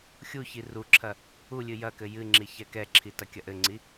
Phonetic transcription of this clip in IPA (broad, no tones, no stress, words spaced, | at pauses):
xʲuçi ruǁʰɐ | ulʲɨ jɐkɘ jɨŋ͡ǁi çɛkɛǁʰi tɐkʲɐʔɘŋ͡ǀi